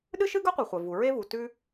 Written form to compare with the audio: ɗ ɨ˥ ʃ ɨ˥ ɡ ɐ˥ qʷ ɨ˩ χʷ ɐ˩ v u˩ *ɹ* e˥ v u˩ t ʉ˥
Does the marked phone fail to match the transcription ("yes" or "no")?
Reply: no